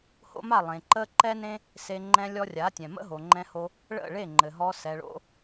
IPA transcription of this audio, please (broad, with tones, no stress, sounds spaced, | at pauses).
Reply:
h o̰˦ m a˦˨ lˠ ẽ˨ ǃ ə˦ ǃ ɛ˦ n ẽ˦ | s e˧ ŋ͡ǃ ɛ̃˧ lʲ ɔ˧ rʲ a˨˦ tʲ ɛ̃˨ m ə̰˦ ɦ o˨ ŋ͡ǃ ɛ̃˧ h o˧ | ɭ ə̰˦˨ ɭ e˦˨ ŋ͡ǃ ɘ˨ ɦ ɔ˧ s ɛ˨ ɭ o̰˧